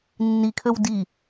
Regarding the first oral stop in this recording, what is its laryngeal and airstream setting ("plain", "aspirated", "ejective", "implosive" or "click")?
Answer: aspirated